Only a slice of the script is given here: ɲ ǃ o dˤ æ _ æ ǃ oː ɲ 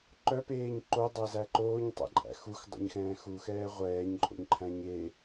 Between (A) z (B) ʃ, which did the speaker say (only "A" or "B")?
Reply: A